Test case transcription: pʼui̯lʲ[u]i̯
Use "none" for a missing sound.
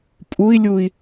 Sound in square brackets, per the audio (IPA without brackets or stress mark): u